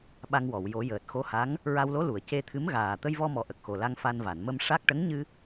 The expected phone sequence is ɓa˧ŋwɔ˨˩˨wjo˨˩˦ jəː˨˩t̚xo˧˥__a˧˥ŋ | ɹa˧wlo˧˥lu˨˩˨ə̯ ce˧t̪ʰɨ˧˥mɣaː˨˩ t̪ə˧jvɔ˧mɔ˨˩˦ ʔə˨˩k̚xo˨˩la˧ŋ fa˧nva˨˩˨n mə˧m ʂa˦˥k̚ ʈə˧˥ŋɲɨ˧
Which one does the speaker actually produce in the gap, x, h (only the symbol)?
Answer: h